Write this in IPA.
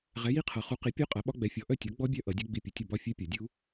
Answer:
ʁ ɛ˨˥ j i˦˥ qʰ ʌ˨˩˦ χ u˨˥ q i˨˥ pʲ œ˦˥ qʼ a˨˥ ɓ ɒ˦˥ ɡ͡b ɛ˨˥ fʲ ɔ˨˥ ʔ œ˥˨ tʲ ɔ˨˥ ɡ͡b ɔ˦˥ bʲ œ˦˥ ʔ ʌ˨˩˦ dʲ ɵ˦˥ ɡ͡b i˦˥ pʲ ɵ˨˥ tʲ ʌ˥˨ b ɒ˥˨ fʲ œ˦˥ pʲ ɒ˨˩˦ dʲ u˦˥

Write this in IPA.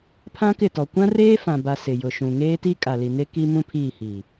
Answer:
pʰ ã˦ k ɪ˦˨ t ɔ˨ kʷ ã˦ r eː˦ f ã˨ b a˨ s ɪ˨ j ʊ˨ ʃ ũ˨ ŋ eː˦ t i˦ kʼ a˨ l i˨ n e˦ k i˦ m ũ˦ pʰ iː˦˨ h iː˨

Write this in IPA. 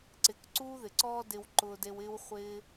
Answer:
ǀ ɪ˧ k ǀ uː˦ ð ɪ˨ ǀ ɔː˦ d ɪ˧ w ǃ ʊː˧ d e˧ w ɪː˦ w χʷ ɪː˦

